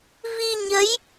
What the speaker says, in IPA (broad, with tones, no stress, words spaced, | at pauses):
vi˧ɲə˨˦j